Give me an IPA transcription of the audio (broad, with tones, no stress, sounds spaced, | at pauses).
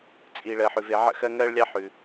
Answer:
t͡sʼ i˩ ɭ ɜ˩ ħ ʉ˩ v e˧˩˧ ʕ ə̰˥ x ɜ˥ ŋ ɜ˥ ɭ lʲ ɑ˥ ħ ʉ˩